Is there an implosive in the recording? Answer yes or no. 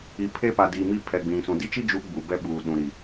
yes